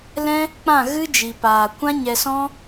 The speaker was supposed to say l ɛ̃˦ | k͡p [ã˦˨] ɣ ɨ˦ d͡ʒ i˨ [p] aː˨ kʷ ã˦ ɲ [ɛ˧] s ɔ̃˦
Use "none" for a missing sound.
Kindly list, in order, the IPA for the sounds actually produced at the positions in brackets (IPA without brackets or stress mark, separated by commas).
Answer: ã˦˨, p, ɛ˧